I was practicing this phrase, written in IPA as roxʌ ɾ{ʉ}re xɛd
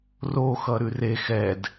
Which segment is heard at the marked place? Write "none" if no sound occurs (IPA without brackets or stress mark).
ʉ